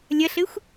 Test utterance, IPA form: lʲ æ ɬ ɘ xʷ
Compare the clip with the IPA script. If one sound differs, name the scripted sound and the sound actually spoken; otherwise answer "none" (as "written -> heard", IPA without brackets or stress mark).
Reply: æ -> ɐ